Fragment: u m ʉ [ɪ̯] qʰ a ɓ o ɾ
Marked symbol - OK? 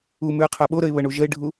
no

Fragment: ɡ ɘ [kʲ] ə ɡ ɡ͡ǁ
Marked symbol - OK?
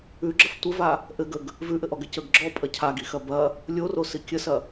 no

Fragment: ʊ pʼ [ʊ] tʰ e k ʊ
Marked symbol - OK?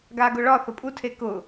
no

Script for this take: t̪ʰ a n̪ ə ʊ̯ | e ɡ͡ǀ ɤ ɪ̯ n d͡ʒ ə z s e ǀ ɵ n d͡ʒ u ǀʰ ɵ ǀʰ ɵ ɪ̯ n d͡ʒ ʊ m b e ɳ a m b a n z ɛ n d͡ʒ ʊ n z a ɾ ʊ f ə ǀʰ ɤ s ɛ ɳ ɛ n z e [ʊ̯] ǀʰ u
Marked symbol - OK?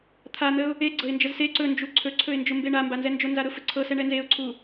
yes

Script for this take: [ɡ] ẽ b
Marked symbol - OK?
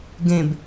yes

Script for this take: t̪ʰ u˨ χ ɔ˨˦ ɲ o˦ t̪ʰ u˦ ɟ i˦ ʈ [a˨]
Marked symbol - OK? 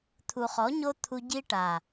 yes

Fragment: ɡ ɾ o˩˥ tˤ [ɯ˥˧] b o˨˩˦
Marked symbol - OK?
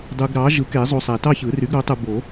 no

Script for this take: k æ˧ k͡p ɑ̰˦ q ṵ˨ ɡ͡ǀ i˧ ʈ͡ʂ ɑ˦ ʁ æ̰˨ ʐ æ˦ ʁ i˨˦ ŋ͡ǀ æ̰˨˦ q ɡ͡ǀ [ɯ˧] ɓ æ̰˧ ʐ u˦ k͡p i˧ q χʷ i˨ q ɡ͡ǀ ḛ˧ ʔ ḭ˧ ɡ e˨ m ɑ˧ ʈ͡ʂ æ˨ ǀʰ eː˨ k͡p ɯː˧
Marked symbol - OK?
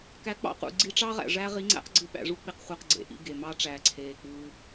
yes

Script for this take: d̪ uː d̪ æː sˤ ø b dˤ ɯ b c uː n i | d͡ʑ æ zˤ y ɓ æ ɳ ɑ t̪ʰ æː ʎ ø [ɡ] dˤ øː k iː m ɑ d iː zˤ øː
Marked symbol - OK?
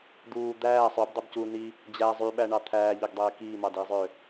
yes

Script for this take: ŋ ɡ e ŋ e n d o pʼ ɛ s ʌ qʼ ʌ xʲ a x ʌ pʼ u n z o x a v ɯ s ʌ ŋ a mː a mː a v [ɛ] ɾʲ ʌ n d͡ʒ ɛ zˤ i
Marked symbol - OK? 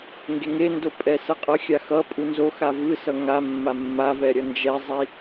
yes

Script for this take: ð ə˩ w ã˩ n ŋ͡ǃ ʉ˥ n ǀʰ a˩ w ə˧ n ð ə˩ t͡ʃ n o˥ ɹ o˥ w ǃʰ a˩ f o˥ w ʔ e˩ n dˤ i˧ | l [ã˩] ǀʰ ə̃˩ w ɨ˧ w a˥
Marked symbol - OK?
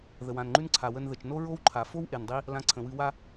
no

